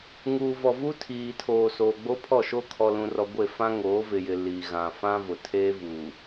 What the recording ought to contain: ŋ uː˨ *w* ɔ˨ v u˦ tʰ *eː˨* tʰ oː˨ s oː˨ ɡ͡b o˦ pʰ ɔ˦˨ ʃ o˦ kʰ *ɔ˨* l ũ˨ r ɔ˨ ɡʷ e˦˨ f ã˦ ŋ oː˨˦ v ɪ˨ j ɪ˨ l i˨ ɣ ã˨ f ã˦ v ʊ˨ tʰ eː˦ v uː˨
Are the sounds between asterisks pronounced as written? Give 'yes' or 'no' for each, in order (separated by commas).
no, no, yes